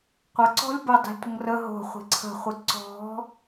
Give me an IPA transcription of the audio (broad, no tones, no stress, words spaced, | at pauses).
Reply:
qʷɐǀɔ̤lʲ bədˤi̤lʲtʷəŋ rə ɦo̤χʷi̤ ǀʰə̤χʷɨ ǀɔ̤